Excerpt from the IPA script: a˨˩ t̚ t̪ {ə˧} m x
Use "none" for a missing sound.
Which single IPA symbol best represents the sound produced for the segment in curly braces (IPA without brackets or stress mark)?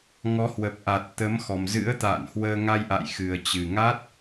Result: ə˨˦